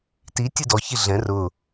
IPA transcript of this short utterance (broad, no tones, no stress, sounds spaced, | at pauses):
t i tʲ ɨ d ɔ ç i ɮ ɛ̃ r ʊ